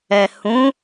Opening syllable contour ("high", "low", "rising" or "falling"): low